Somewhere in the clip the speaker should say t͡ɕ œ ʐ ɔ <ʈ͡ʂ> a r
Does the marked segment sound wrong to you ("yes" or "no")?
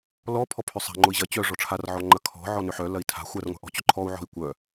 yes